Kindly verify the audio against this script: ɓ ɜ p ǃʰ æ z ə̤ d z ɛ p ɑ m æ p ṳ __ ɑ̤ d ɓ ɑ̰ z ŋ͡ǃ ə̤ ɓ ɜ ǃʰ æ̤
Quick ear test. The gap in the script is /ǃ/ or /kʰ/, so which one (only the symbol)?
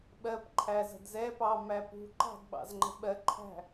ǃ